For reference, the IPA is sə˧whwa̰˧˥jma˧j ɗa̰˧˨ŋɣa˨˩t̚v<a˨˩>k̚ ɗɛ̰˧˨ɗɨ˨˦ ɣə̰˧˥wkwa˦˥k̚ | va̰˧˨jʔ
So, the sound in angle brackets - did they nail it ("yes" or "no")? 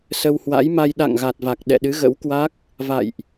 yes